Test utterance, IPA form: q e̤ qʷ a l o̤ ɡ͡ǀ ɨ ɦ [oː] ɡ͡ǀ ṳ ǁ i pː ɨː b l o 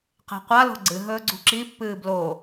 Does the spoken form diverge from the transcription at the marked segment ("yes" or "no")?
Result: yes